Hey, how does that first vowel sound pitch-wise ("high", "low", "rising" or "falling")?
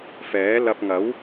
rising